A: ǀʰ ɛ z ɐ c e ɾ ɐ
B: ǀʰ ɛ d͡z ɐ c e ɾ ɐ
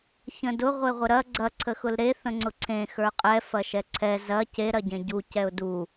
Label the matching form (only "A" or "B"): A